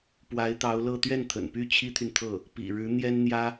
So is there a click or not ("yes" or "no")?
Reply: no